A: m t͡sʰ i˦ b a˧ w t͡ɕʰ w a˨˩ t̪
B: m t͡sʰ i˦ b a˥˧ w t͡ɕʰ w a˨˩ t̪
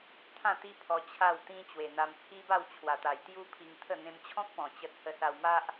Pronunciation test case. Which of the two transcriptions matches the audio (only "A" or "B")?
B